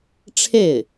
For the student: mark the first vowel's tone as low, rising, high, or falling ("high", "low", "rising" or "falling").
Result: falling